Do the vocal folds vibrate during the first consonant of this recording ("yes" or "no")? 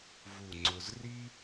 yes